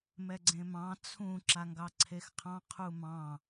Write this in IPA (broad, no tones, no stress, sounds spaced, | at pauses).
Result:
m ɛ ɡ͡ǀ ẽ m ɑ̃ t͡sʰ ũ ǁ a ŋ ɡ ɑ ǀʰ e x qʰ ɑ̃ qʰ u m ɑ̃